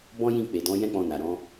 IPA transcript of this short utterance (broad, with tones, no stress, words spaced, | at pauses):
bɔ̃˦jĩ˦˨ k͡pe˨dɔ̃˨˦ jɛ̃˦k͡pɔ̃˧na˨ ɾɔ̃˨˦